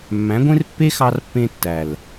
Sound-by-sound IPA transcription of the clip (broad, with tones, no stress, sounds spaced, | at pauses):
mː æ̃˨˦ ɡʷ ẽ˦ r pː e˦ x ɑ˧ r pː ẽ˧ tː æ˨ l